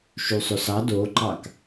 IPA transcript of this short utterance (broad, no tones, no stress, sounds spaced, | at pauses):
ʃ y sˤ ø s ɑ d o ǃ ɑ k